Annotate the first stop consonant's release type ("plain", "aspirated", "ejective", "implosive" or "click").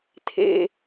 aspirated